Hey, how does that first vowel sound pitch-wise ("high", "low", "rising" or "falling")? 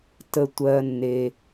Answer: low